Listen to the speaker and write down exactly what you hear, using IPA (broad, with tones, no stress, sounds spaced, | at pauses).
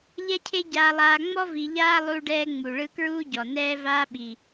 ʎ ɛ˥ cʰ e˥ ɟ aː˧ lˠ aː˧ ŋ͡m ɔ˥ v i˧ ʎ aː˥ lˠ u˧ ɖ ɛː˧ ŋ͡m u˩ ɭ ɯ˧ k ɹ uː˥ ɟ ɔ˩ n ɛː˧ v aː˧ ɓ i˩